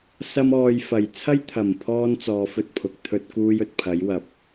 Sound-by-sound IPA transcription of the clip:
s ɐ˥ m ɔː˧ j f ɐ˨˩ j t͡sʰ ɐ˥ j t̪ʰ ɐ˨˩ m pʰ ɔː˧ n t͡s ɔː˧ f ɵ˥ t̚ pʰ ʊ˨ k̚ t̪ʰ ɵ˧ t̚ k uː˧ j ɵ˨ t̚ pʰ ɐ˨˥ j w ɐ˨˥ p̚

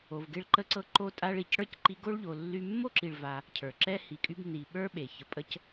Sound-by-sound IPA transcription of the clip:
o˨ v ɡ e˦ ɭ ǃ ə˦ ǀ ɤ˦ ǃ o˦ tʼ a˦ ɭ i˩ c ɽ ə˞˥ c ǃ i˦ ɡ o˥ ɭ ʎ o˨ lː y˦ mː o˥ ǁ i˨ ɭ v a˨ | cʰ ə˞˩ ǁ ɛ˥ h i˨ kʼ y˦ b n i˨ ɓ ə˞˥ ɓ e˩ ç ə˨ pʼ ə˥ c

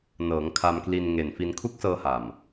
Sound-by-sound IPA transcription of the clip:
n ɤː˩˦ ŋ kʰ a˧ m k l i˧ n ŋ e˨˩ n f i˧ n kʰ u˦˥ k̚ s ɤː˧ h a˨˩ m

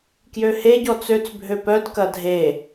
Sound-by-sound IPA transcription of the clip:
k j ø h e ɟ ɔ t͡s ø t͡s bʱ ø p œ d k ɐ dʱ e

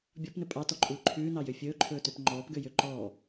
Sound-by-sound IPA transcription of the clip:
bʲ ɔ p n ɵ pʼ ɑ t ɔ ǃʼ uː ǃʰ ʉː n ɑ j ø fʲ ɵː ǃʰ ɵː t ø p ŋ͡ǃ ɔː p ɡ ø j ø ǃ ɔː

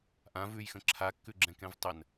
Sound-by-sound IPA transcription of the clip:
ʔ ã v ʉ j x ə̃ ǁʰ a kː ʉ ɡ͡ǁ ɛ̃ k ɛ̃ v tˤ ə n

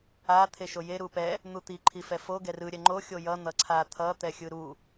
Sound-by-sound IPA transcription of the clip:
a t̪ʰ e ʃ o j e ɾ u p ɛ | n̪ u t̪ i ǃʰ i f ɛ f o ɡ ɛ r ɯ ɾʲ ɛ ŋ͡ǃ o xʲ o j ʌ n̪ ʌ ǀʰ a t̪ʰ ʌ t̪ ɛ xʲ ɯ ɾ u

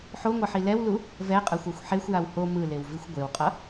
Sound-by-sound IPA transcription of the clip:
ħ o ŋʷ ʌ ħ i l ɛ w l u | v ɛ qʼ a xʷ a xʷ ħ e xʷ j a w h o m ɯ l e w v i xʷ ɡʷ e w qʼ ʌ

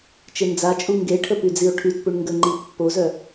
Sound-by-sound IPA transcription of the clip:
t͡ʃ e n d͡z a t͡ʃʼ u ŋ ɡ e ʈʰ ə p y d͡z i o̯ ʈʰ y t p u ɳ ŋ ɡ ə ŋ͡ǃ i pː o z œ

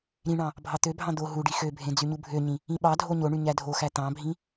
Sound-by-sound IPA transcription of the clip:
ɾ ĩ ɳ ɑ̃ | bʱ ɑ t̪ ø bʱ ɑ̃ d̪ o ɦ u ɖ i x ø bʱ ẽ d͡z y ɲ u bʱ ø ɲ ĩ | ĩ ɓ ɑ dʱ o ɲ o ɳ y ɲ æ dʱ o x æ t̪ ɑ̃ bʱ ĩ

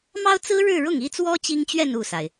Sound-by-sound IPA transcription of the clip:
m ɑ˥ ʊ̯ t͡s ɹ̩˥ ɻ ɻ̩˥˧ ɻ ʊ˥˩ ŋ i˥ t͡s w ɔ˥ t͡ɕ i˥ ŋ t͡ɕ ɥ ɛ˥˧ n u˥˩ s a˩ ɪ̯

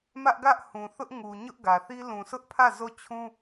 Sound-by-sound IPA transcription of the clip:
m ä˦ ʔ ɡ ä˦ ʔ h ũ˨ θ ʊ˦ ʔ ŋ u˨ ɲ ʊ˦ ʔ ɡ ä˨ θ i˦ l ũ˨ sʰ ʊ˦ ʔ pʰ ä˦˨ z o˦˨ t͡ɕʰ ũ˦

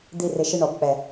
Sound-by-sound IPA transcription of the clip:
d̪ i˥˨ r ɪ˧˥˧ ʃ ɪ˥˨ ɳ ɔ˨˩˦ b k͡p ɛ˨˩˦

